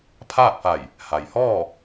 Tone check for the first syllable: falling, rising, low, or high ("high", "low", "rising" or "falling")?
falling